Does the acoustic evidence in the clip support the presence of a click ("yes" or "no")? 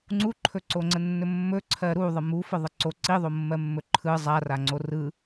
yes